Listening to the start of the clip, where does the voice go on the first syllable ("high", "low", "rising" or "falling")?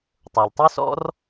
low